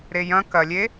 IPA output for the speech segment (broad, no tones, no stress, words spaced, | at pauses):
ɾejɐ̃ kɐlʲe